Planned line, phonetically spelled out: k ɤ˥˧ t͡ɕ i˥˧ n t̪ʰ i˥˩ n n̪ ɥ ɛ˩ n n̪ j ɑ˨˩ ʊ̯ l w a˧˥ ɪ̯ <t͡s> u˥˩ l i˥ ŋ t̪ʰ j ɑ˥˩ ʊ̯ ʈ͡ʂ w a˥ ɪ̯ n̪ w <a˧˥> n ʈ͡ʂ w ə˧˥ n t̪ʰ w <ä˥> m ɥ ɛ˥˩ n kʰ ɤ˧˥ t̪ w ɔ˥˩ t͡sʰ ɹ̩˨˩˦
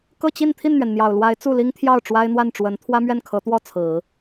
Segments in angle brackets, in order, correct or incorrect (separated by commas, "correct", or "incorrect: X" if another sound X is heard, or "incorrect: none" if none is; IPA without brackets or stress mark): correct, incorrect: a˥˩, correct